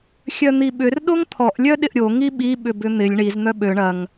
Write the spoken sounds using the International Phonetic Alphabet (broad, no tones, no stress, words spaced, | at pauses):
xʲœn̪iɓʏr ɗoŋt̪ʰɔʔ lʲœɗɪʔɾʲo ŋiɓi ɓʏbʏn̪ɪlʲ ɳiz n̪œɓø ɳɐŋ